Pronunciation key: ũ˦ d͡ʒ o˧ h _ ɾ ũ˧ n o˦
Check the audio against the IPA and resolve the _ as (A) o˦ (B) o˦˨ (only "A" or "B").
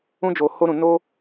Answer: A